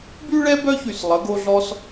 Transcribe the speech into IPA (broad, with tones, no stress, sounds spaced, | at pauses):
b y˥ ɭ ɛ˥ b œ˥ ç y˧˩ s lˠ ə˩˧ ɡ o˧ ɮ ɔ˧ s